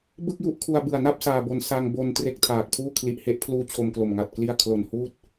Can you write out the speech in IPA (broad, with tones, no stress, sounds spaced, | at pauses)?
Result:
b ɯ˥˩ k̚ j u˥˩ ʔ kʰ u˧ a̯ b ɯ˨˩ a̯ n a˥˩ p̚ s aː˧ b o˧ n s a˧ ŋ b o˧ n t r e˥˩ k̚ tʰ aː˨˩ k̚ pʰ uː˥˩ kʰ l i˨˩ ʔ h e˦˥ ʔ pʰ l uː˦˥ t͡ɕʰ o˧ m k l o˨˩ m ŋ a˨˩ t̚ k l i˥˩ a̯ kʰ l o˨˩ n h uː˥˩ t̚